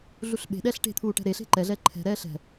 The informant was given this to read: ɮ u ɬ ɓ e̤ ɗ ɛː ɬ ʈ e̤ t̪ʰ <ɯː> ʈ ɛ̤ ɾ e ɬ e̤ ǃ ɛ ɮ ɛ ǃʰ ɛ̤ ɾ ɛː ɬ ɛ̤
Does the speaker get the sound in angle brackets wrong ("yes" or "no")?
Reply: yes